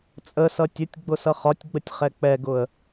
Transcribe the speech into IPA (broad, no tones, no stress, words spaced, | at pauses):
t͡sʼəsʌ tʲʊtʲ ɡ͡bʊsʌχɒtʲɡ͡bətʲ χɛk͡pɛɡʊə̯